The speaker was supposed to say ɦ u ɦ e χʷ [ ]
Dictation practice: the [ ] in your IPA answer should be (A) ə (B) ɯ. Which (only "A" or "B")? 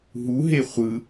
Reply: B